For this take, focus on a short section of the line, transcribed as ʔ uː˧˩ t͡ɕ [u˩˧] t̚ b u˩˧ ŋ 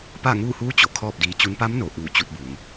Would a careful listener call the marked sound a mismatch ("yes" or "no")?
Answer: yes